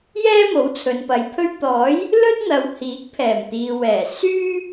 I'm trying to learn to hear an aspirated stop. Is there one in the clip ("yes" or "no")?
yes